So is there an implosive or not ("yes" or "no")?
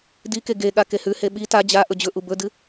yes